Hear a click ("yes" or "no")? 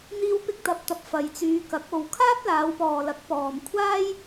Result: no